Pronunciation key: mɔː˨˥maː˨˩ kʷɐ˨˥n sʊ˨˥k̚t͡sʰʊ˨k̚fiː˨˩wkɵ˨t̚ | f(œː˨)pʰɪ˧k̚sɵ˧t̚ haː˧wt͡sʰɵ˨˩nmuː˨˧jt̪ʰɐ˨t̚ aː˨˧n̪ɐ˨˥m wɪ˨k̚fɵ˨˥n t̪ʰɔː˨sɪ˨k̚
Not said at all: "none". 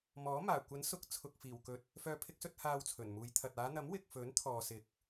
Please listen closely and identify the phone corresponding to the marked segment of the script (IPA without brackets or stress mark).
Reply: œː˨